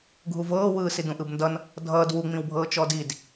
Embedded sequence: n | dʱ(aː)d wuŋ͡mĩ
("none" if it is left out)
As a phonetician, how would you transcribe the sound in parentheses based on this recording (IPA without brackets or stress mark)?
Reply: ʌː